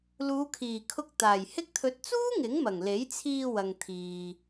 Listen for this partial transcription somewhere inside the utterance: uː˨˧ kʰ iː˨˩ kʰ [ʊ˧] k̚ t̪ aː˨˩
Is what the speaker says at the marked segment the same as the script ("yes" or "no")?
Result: yes